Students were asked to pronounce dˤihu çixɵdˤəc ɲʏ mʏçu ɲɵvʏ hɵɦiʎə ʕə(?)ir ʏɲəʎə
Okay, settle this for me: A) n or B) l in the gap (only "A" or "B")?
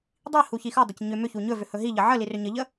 B